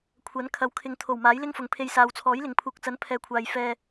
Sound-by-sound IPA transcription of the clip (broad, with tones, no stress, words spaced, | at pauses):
kʷʰɐ˨˥n kʰɐ˨˧wkʰɪ˨˧ŋt̪ʰo˨˩w maː˨˥jlɪ˥ŋfʊ˨˧ŋpʰe˧j saː˨wt͡sʰɔː˨˥jlɪ˨ŋ pʰuː˨k̚t͡sɐ˨˥npʰɛː˨kʷʰaː˨j fɛː˧